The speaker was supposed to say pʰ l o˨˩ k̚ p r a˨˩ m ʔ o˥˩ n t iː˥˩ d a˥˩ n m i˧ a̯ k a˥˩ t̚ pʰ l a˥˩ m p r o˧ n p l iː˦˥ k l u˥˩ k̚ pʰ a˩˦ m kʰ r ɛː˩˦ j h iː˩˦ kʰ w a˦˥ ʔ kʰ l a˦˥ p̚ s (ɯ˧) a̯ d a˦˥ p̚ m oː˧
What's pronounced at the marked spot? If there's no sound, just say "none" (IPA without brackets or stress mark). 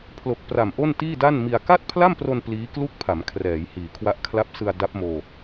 ɯ˧